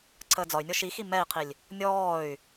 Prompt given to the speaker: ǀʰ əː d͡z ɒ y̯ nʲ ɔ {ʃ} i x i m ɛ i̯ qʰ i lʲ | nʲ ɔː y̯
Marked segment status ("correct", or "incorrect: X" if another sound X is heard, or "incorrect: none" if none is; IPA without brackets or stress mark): correct